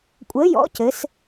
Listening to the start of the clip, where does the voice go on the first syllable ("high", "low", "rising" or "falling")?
rising